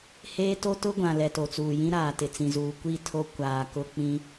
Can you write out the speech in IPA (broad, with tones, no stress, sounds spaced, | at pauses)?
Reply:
h eː˦ t o˦ t ʊ˦ ɡʷ ã˨ l ɛ˨ t o˨ t͡s uː˨ j ĩ˦ ɾ aː˨ t ɪ˨ t͡s ĩ˨ z uː˨ kʷ i˦˨ tʰ o˦ kʷ aː˨ k ʊ˦ k͡p ĩ˦